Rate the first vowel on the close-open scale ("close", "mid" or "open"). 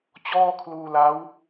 mid